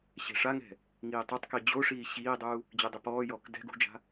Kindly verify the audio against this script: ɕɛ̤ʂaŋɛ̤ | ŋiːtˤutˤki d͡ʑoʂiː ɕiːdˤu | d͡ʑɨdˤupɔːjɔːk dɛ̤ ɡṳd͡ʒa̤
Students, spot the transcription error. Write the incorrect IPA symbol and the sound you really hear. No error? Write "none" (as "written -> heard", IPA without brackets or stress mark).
none